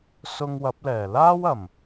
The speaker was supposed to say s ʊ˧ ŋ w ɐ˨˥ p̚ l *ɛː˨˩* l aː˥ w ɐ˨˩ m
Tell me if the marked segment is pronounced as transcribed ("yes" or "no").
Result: yes